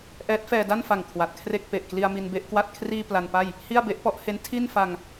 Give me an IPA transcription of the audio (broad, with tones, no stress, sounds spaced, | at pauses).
ʔ ɛː˦˥ t̚ f ɛː˧ d a˥˩ n f a˨˩ ŋ kʰ w a˨˩ t̚ kʰ r e˥˩ k̚ p e˨˩ ʔ k l i˧ a̯ m i˧ n b e˥˩ ʔ k w a˥˩ t̚ kʰ r iː˧ p l a˧ n p a˥˩ j | h i˥˩ a̯ b e˦˥ ʔ p ɔ˦˥ ʔ h e˦˥ n tʰ i˥˩ n f a˧ ŋ